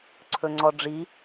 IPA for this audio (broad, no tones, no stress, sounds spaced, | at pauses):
ǀʰ ɵ ŋ͡ǀ ɔ ɖ͡ʐ i